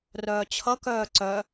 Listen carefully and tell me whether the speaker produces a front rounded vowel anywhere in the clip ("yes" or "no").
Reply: yes